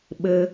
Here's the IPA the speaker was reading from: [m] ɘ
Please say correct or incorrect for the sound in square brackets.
incorrect